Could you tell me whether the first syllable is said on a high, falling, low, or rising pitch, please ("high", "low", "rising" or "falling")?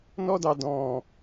high